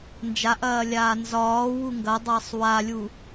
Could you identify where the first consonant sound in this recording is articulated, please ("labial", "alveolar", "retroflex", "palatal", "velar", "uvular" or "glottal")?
alveolar